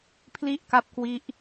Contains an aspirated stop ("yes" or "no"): yes